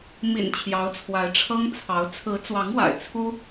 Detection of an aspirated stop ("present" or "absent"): present